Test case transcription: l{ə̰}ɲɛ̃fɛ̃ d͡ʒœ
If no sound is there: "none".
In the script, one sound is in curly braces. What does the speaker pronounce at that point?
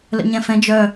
ə̰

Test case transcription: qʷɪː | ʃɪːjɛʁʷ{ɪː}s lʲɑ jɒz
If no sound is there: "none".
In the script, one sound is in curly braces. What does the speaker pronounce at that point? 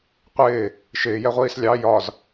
iː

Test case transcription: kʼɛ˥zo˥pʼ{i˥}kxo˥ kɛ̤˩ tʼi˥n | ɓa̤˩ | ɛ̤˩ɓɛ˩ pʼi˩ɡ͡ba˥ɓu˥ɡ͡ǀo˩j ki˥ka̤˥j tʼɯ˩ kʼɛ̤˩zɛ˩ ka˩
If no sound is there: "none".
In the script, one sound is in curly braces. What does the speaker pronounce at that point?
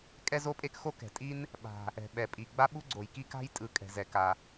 e˥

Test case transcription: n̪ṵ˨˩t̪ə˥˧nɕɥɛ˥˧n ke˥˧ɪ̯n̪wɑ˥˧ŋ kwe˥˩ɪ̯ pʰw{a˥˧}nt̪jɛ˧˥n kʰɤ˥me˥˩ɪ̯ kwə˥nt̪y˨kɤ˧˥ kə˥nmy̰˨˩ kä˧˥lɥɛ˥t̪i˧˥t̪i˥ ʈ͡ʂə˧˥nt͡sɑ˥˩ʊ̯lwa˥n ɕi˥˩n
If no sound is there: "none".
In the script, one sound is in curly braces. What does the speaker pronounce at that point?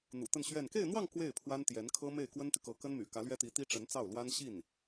a˥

